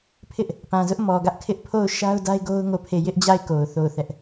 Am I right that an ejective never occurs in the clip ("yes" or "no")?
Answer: yes